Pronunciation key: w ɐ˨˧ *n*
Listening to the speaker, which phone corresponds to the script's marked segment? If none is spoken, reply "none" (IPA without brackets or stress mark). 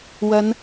n